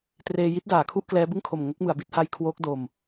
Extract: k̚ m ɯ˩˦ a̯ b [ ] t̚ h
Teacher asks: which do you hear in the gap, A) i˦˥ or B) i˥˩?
A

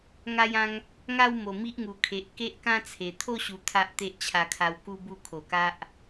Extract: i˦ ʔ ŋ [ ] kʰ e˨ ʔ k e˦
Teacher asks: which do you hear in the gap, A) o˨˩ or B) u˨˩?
B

